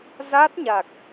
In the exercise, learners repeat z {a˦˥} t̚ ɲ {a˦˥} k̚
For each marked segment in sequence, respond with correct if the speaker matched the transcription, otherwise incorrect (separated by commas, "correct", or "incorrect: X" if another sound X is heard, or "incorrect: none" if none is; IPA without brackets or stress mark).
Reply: correct, incorrect: a˨˩